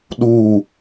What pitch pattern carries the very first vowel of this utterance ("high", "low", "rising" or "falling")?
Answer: falling